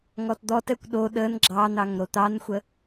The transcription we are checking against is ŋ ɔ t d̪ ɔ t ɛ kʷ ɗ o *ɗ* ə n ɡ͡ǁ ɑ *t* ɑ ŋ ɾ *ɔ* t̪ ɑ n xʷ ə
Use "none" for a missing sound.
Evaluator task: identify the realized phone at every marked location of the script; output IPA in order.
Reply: ɗ, n̪, o

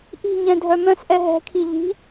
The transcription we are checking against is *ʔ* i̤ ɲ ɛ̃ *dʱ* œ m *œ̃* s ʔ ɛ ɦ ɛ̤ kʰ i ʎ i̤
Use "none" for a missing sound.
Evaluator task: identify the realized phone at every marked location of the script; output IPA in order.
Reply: ʔ, dʱ, œ̃

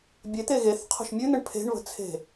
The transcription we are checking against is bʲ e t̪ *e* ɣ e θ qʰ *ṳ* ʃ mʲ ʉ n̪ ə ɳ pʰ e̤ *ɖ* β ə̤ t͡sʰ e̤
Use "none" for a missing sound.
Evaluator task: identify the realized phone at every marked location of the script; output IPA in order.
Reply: e, o̤, ɳ

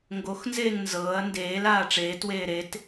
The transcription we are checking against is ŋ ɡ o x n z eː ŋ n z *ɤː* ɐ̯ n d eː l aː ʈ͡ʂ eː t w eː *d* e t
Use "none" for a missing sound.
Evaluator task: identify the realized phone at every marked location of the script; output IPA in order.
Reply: ɤː, ɾ

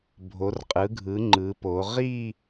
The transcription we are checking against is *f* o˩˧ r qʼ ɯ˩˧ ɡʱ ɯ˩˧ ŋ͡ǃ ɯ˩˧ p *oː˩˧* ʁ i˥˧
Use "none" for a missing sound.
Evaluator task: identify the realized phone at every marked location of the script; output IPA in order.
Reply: bʱ, o˩˧

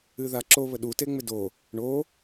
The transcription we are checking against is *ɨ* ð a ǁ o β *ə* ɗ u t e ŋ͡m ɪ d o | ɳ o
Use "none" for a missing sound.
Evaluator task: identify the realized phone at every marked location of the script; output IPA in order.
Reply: ɨ, ə

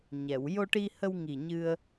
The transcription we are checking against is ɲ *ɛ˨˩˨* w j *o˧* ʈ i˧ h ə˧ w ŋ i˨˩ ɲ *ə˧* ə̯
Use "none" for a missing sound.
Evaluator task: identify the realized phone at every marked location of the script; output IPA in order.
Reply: ɛ˨˩˨, o˧, ɨ˧

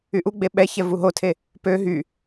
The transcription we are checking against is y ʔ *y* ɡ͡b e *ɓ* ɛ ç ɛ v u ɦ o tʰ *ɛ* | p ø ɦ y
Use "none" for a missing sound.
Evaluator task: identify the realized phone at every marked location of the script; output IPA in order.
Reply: u, ɓ, e

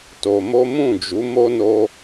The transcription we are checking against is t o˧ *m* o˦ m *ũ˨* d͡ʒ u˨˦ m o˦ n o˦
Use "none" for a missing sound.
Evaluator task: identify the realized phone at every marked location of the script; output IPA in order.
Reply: m, ũ˦˨

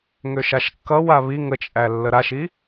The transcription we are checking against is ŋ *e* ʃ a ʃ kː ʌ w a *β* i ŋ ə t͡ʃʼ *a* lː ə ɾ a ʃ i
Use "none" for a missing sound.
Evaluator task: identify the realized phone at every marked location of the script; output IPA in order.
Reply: ø, β, æ

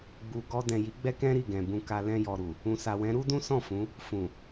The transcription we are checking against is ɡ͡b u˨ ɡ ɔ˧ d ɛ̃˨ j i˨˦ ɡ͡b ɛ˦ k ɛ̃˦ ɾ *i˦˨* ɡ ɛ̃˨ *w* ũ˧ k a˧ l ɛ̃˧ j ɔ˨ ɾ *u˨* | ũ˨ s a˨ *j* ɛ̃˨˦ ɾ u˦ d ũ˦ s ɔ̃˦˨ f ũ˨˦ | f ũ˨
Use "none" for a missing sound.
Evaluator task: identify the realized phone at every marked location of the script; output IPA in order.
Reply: i˦˨, b, u˨, w

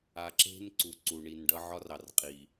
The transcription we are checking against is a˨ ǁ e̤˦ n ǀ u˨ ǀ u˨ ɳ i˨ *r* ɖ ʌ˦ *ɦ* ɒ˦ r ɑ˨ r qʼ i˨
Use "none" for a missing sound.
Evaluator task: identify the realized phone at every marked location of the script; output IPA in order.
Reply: n, ʕ

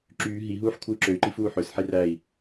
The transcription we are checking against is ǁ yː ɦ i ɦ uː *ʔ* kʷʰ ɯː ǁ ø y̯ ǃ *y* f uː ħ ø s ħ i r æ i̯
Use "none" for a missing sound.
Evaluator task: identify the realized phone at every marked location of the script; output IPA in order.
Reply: ħ, i

